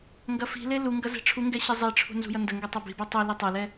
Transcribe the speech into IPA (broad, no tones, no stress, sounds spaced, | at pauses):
ŋ ɡ ɐ f i̤ l e l u ŋ ɡ ɐ z ɛ̤ ʈ͡ʂʰ u ŋ ɡ ɛ ɕ i zˤ e ʈ͡ʂʰ ṳ n z ṳ j ɐ n d ə ŋ ɡ ɛ tˤ ɐ b i̤ b ɛ tˤ o l i tˤ ɐ l ɛ